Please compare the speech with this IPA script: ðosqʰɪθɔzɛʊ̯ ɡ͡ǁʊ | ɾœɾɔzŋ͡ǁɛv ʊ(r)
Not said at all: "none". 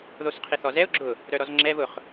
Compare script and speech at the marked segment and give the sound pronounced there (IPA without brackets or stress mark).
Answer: χ